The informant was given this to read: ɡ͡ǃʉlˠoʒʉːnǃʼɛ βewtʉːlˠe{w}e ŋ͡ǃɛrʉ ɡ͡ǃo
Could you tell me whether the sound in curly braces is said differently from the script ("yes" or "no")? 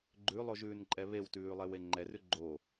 no